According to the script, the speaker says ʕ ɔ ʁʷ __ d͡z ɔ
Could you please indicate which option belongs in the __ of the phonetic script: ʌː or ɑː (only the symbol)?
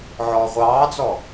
ɑː